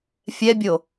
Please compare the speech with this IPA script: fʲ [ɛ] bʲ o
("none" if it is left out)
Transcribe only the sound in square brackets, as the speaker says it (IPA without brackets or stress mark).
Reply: ɛ